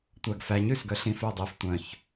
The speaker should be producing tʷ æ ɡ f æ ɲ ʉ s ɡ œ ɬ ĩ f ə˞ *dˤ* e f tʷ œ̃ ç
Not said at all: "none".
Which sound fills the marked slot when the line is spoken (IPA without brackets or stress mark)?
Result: dˤ